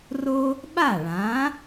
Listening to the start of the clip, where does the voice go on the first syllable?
high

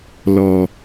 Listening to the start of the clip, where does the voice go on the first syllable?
low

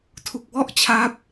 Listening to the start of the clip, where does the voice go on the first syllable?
low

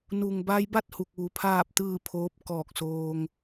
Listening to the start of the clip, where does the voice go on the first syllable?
low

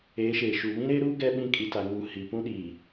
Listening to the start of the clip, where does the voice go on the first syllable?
rising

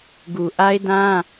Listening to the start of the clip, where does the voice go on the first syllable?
low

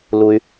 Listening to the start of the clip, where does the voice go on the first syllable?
low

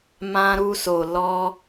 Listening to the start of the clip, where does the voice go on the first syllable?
high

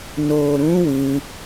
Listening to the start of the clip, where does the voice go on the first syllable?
low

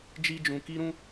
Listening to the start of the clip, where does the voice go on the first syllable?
high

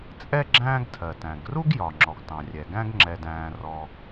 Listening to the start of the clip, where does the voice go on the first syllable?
high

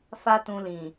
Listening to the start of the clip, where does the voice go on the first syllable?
high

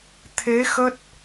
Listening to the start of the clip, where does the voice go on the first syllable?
rising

